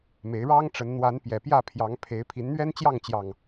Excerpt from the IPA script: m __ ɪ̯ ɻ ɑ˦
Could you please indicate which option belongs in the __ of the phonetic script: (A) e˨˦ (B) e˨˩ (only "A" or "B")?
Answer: A